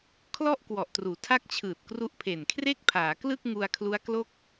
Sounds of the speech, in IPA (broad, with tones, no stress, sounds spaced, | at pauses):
kʰ l ɔ˥˩ ʔ k w ɔ˨˩ ʔ t r uː˩˦ tʰ a˥˩ k̚ t͡ɕʰ ɯː˨˩ t̚ k r u˦˥ ʔ pʰ e˨˩ n kʰ r e˥˩ k̚ pʰ aː˩˦ k l ɯ˥˩ k̚ ŋ u˧ a̯ kʰ l u˦˥ a̯ k l o˥˩ k̚